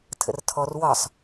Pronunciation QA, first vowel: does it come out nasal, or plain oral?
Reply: oral